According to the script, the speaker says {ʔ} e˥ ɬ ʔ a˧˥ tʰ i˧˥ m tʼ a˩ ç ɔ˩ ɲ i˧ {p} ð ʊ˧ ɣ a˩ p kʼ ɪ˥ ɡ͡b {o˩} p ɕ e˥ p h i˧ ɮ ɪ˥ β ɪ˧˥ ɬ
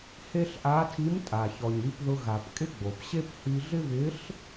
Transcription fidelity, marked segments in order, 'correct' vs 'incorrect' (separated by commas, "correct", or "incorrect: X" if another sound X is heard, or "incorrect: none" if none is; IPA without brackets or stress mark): incorrect: h, correct, correct